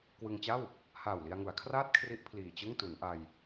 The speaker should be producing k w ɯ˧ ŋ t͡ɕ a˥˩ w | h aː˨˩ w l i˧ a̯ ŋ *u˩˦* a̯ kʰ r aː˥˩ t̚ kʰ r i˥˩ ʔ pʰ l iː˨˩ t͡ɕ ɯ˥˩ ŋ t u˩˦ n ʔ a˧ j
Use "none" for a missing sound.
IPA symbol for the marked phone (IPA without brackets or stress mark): u˩˦